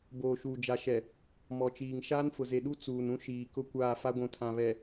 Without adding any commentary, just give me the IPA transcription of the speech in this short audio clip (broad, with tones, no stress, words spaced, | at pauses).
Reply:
boː˨ʃuː˨d͡ʒa˨ʃɛ˨ | mɔ˨t͡ʃiː˨ŋ ʃaː˦nfʊ˨ze˨ɗu˦ t͡suː˨nũ˦ ʃiː˨kʊ˦ kʷaː˦˨fa˦ɡʷũ˨ tʰã˨βɛ˨